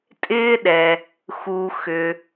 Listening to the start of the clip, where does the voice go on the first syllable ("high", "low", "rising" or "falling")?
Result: high